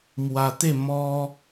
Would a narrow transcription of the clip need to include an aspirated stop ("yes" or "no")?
no